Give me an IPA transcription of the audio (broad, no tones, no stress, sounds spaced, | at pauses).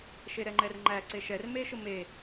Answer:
ʃ e ɾ ɛ ŋ͡ǃ ɛ r ŋ͡ǃ æ ǀ e ʃ ɛ r m e ʃ ʊ m e